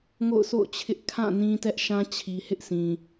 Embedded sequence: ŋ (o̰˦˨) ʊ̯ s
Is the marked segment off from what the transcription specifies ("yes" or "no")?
no